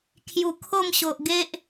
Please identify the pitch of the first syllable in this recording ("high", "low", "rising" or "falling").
low